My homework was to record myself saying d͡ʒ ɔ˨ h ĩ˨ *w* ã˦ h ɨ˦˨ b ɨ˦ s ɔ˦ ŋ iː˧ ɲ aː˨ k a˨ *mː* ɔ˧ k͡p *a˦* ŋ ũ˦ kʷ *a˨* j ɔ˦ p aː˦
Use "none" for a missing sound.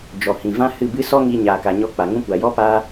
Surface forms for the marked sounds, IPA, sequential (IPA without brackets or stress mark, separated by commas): v, ɲ, a˨, a˨